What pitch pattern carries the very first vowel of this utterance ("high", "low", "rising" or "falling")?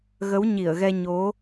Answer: rising